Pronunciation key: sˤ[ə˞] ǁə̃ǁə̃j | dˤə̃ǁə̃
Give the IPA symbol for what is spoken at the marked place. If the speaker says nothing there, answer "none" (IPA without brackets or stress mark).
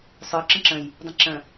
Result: ə˞